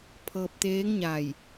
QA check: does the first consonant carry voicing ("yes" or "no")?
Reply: no